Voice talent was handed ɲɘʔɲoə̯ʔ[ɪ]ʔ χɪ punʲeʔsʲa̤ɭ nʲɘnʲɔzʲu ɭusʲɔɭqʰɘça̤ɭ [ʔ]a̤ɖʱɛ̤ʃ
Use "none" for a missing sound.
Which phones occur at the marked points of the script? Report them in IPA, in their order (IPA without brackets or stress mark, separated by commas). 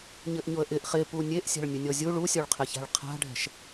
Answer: ɪ, qʰ